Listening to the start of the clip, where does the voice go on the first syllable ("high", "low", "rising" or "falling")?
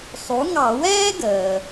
rising